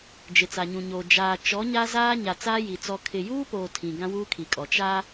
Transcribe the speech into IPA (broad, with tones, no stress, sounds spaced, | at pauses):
d͡ʒ ɪ˨ t͡s a˨ ɲ ũ˨ ɲ oː˨ d͡ʒ aː˨ t͡ʃ ɔ˨˦ ɲ a˦ z aː˦ ɲ a˨ t͡s aː˦ j i˨ t͡s ɔ˨ kʰ ɪ˨ j uː˦ p oː˨ tʰ ĩ˨ ɡ ã˦ w uː˦ kʰ i˨ kʼ ɔ˨ t͡ʃ a˦